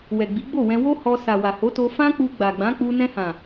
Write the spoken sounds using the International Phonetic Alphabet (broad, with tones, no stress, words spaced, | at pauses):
wɛ˨ɡ͡bi˨˦ɡ͡bo˦˨wɛ̃˧ wo˦ hɔ˧sa˨ wa˨ho˨˦to˧ fã˦k͡pu˧ ɡ͡ba˨ɡ͡bã˨˦k͡pu˧ nɛ̃˧hã˨